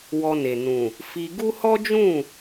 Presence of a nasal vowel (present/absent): present